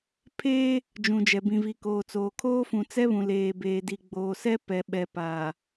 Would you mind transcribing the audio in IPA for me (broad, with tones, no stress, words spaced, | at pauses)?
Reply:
pʰeː˦ | d͡ʒũ˨d͡ʒɛ˨ bĩ˨vi˨koː˨t͡soː˨ kʰoː˦fũ˨ t͡sɛ˦βũ˨ leː˨beː˨di˨ ɡ͡boː˨sɛ˦ pɛ˨ɓɛ˨paː˨